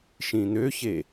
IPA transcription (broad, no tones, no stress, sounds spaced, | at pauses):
ʃ ĩ n̪ ø ç e